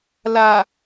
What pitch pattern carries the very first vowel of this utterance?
low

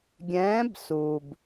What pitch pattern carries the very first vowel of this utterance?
rising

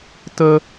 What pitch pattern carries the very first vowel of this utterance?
high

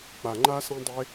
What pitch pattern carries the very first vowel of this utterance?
low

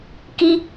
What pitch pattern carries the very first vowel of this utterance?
high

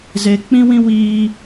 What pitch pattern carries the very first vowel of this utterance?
low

